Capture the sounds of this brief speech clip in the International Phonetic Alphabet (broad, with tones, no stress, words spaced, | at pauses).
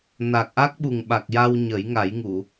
na˨˩k̚ʔa˦˥k̚ɓu˨˩ŋ ɓa˨˩k̚ ja˧wɲə˨˩˦jŋa˨˩˦j ŋu˨˩˨